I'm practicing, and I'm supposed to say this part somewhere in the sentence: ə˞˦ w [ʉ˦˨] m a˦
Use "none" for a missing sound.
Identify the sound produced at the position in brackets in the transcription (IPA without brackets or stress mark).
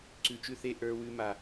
ʉ˦